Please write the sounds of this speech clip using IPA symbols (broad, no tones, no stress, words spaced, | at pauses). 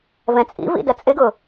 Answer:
vɛ̃t͡sʼḭvḭ dɐt͡sʼɪɡʊ